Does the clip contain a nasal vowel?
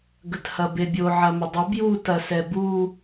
no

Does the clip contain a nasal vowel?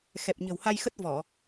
no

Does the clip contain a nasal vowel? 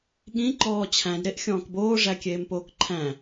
yes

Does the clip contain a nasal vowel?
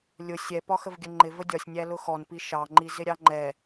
no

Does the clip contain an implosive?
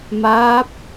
no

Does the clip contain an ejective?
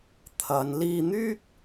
no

